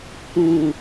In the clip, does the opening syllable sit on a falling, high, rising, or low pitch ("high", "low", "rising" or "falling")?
low